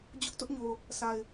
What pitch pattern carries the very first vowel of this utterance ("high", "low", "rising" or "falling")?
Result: high